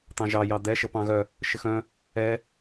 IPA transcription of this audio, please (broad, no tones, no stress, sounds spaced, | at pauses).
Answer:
t̪ ɑ̃ ʒ ɑ j ɑ d̪ ɛ ʃ ə p ɑ̃ ɣ œ | ʃ ɘ x œ̃ | ɛ